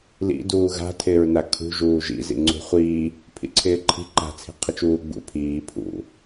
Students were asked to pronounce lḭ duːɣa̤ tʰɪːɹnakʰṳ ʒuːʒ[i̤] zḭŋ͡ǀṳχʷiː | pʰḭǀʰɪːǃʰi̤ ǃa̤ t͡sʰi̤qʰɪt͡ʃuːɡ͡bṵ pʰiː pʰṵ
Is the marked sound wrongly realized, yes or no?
yes